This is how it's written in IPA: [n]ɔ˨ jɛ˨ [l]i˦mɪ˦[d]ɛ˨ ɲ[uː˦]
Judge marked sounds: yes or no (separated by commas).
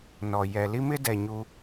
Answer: yes, yes, yes, no